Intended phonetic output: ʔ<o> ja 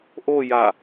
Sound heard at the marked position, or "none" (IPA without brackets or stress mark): o